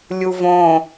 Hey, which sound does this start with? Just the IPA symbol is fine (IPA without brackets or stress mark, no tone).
lʲ